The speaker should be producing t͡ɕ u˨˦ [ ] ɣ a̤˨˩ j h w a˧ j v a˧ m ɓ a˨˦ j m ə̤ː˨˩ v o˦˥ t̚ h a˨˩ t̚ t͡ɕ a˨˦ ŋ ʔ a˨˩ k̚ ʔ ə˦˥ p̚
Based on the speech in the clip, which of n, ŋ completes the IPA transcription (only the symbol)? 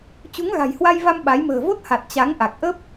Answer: ŋ